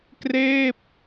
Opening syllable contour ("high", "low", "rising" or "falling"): falling